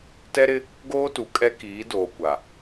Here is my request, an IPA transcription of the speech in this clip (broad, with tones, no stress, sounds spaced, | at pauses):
t ɛ˦ ɾ ɪ˦ | ɡ oː˦ t u˨ kʼ ɛ˦ k iː˨˦ d oː˨ kʷ a˨